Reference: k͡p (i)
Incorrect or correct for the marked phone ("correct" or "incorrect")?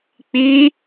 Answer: correct